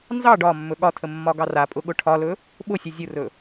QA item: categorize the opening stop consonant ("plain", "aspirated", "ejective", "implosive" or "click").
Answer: plain